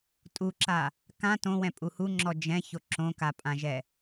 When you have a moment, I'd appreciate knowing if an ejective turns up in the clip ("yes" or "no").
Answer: yes